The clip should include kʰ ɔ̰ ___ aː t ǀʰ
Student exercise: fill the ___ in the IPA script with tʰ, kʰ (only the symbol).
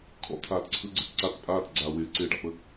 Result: tʰ